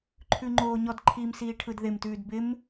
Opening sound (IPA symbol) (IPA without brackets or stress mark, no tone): ǃʰ